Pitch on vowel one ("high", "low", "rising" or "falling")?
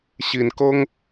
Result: low